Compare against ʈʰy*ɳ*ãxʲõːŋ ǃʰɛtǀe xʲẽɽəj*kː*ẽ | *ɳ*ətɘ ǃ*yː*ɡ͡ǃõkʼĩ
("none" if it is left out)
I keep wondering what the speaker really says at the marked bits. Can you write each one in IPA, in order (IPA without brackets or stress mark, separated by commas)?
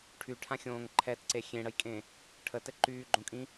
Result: ʈʰ, kʼ, ʈʰ, yː